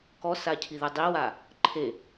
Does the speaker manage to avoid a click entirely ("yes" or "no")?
no